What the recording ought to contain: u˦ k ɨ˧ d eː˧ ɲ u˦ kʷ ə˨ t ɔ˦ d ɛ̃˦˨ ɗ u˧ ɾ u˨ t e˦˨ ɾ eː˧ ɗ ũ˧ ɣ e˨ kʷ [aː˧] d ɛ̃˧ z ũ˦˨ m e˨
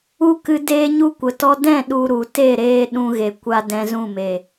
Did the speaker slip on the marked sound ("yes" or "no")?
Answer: yes